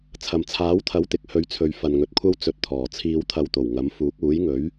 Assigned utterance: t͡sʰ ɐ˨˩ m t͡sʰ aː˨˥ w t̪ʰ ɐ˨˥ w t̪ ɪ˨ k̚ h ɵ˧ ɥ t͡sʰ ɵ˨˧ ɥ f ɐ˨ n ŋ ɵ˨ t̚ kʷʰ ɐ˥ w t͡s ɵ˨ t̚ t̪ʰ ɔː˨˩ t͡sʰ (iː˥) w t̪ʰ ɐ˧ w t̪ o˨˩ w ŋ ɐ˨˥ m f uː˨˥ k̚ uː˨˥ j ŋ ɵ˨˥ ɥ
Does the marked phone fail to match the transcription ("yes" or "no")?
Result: yes